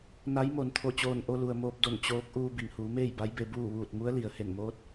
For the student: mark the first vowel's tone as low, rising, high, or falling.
rising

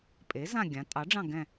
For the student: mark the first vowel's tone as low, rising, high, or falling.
rising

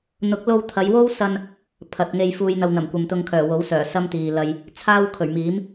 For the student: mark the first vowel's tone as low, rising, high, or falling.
rising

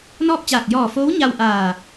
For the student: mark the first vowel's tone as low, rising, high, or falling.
falling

